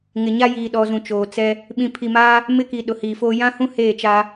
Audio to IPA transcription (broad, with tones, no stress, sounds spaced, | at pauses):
ŋ ɪ˨ ɲ a˦ j iː˨ ɗ ɔ˨ z ũ˨ t͡ʃ oː˨ t͡s ɛ˦ | ɓ ĩ˨ pʰ i˨ m aː˦ | m ɪ˦ k i˨ ɗ ʊ˨ h iː˨ f oː˦ j ã˦ h ũ˦ h eː˦˨ t͡ʃ a˦